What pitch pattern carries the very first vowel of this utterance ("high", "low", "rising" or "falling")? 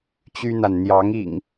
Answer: high